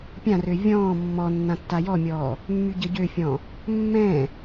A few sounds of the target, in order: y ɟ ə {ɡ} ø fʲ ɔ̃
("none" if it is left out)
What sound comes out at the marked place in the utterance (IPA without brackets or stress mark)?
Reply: ɟ